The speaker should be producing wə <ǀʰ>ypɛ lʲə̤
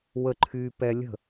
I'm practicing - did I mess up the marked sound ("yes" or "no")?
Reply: yes